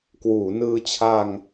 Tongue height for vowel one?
high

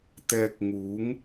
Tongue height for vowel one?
mid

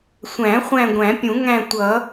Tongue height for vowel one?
low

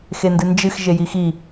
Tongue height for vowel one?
mid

